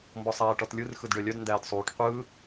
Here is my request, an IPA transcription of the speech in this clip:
mbɔsˤæːʈɔtlʲɯr xɯdɖœlʲœd ndæːdsˤuːʈ qʷɯː

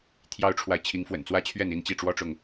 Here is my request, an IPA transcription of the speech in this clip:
t̪ʰjɑ˦ʊ̯ʈ͡ʂʰwa˨ɪ̯ t͡ɕʰi˨˦ŋfwə̰˨˩nt͡swä˦t͡ɕʰɥɛ˥˨n i˥˨nt͡ɕi˥˨ʈ͡ʂwɔ˦ʈ͡ʂʊ˨ŋ

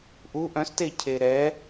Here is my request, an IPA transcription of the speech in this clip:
ʔuʔ œ̃ste cʰeɾɛ

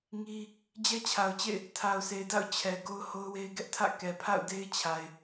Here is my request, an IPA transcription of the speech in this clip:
ŋi˦ | d͡ʑɛ˦t͡ɕʰa˨ʊ̯t͡ɕḛ˦˨ɪ̯ | tʰa˨ʊ̯sʰe˨ɪ̯da̰˦˨ʊ̯ t͡ɕʰɛ˨ ɡo˦ʊ̯ho˦ʊ̯we˦ɪ̯ ɡɛ˦ʔtʰä̰˦˨ kɛ˨pʰa̰˦˨ʊ̯de˦ɪ̯t͡ɕʰa˨ɪ̯

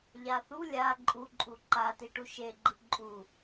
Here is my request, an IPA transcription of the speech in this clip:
ʎaθu lʲa ǃʼu ǃʼuǃa tiʈuʃe ɡ͡ǃɯǃʼu

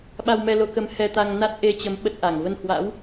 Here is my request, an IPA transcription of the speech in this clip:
ɓa˧wmɛ˧lo˨˦kə˨˦m hɛ˧t̪a˧ŋ na˦˥t̚ʔe˧t͡ɕə˨˦m ɓə˦˥t̚ʔa˧˩ŋ və˧nhwa̰˧˥w

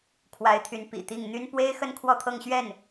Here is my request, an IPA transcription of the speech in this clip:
kʰwa˧˥ɪ̯t̪ʰy˧˥n pḭ˨˩t̪i˥˩ŋ n̪y˥n pwe˥ɪ̯xə˥˧n kʰwɔ˥˧t̪ʰɤ˥˧ŋɕɥɛ˥˩n

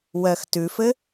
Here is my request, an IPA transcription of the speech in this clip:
wɜxtʉfɘ

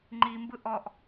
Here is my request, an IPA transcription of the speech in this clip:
ŋ͡ǃimbɯ ʔɔʔ

